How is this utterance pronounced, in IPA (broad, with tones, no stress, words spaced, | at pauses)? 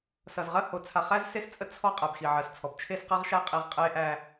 sʌ˨zʁɜ˦ ho˨ t͡sʰa˨χæ˦z se˦st͡sʼə˦ t͡sʰɔ˦ qʼæ˨bxi˨ʕɜ˨st͡sʰɔ˨b t͡ʃʰe˦sqɜ˦ʁʃa˦ qʼi˨ʁ qʼe˦ʔæ˦